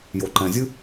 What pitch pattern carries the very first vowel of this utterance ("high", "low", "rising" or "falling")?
low